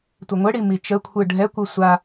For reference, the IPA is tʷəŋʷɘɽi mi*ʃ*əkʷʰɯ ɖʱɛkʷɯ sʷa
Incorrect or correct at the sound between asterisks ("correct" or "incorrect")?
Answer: incorrect